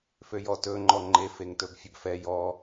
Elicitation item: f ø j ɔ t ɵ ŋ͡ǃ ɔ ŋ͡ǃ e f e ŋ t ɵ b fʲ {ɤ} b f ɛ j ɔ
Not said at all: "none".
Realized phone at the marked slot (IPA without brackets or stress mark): ɵ